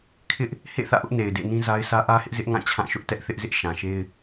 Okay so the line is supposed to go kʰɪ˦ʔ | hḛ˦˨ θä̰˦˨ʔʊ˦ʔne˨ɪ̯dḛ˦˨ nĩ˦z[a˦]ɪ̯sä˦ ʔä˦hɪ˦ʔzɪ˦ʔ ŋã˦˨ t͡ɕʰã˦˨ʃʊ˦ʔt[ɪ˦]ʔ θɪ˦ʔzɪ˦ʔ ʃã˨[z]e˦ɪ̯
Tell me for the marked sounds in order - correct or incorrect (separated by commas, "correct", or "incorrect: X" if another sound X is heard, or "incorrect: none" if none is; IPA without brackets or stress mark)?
correct, incorrect: ɛ˦, incorrect: ʃ